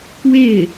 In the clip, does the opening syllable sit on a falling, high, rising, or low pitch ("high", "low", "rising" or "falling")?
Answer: falling